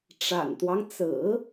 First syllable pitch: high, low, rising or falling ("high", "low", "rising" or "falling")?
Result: low